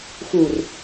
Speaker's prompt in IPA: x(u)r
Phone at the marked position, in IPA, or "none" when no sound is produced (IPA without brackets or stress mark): u